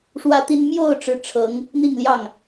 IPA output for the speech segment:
ʂ w ä˥ t̪ i˥ n m j o˥˧ ʊ̯ ʈ͡ʂ ɻ̩˥˩ ʈ͡ʂʰ ɤ˧˥ ŋ | n̪ i˥˧ ŋ l j ɑ˥˩ ŋ

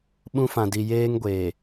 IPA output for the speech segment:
ɓ ũ˦ f ã˨ d i˨ j eː˦ ŋ ɡʷ eː˨

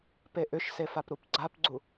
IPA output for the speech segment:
p e ʔ ʏ ʃ s e f a p ɾ u p ɡ͡ǀ a p ɡ͡ǀ u

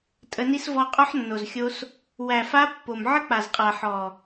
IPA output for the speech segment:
tʼ ə˧ n i˦ s v ɔ˧ qʼ ɔ˦ ħ nː o˨ z xʲ o˧ s | w æ˨ f a˧ pː o˨ m ʕ ə˦ k͡p a˨ z qʼ a˨ ħ ɔ˨

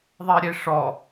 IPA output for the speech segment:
ðˤ ɛ ɾʲ e ʂ ɔ

